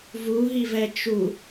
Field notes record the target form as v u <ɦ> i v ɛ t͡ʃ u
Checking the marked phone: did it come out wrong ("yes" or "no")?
no